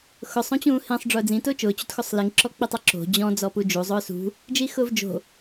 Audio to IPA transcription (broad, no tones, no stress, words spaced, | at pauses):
xʊsˤ õt͡ɕũːhĩsˤ ɖ͡ʐʊːd͡zĩ tʊːt͡ʃʊː t͡ɕṳtxosˤliŋ ǁɔk͡pitˤɪǁo̤ d͡ʑɔ̃ d͡zɔpud͡ʒu zˤʊːsṳ | d͡ʒixʊːvd͡ʒo̤